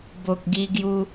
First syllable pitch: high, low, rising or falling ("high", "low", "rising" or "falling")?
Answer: low